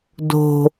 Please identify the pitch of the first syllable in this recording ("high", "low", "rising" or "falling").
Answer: low